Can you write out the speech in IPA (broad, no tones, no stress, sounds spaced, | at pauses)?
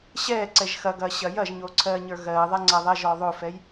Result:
ɕ ɛː ǀ ɛ ʒ x ɐ ɡ ɐː ɕ ɐː j ɐ ʒ ɲ oː ǀʰ ɜː ɲ ə˞ ɣ ɜː ðˤ ɛ ŋ͡ǀ ɐ ðˤ ɛ ʒ ɔː ðˤ o f ɛ j